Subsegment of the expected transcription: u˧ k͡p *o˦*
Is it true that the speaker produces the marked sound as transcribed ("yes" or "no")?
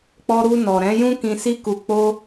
no